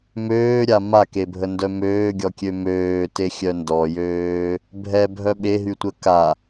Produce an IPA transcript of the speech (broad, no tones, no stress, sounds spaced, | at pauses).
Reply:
m øː ɾʲ a m a k e bʱ ə n d œ m øː ɡʲ ɔ kʲ ø m øː t e xʲ œ n d ɔ j øː | bʱ ɛ bʱ œ ɓ e ɦ y tʷ ə k a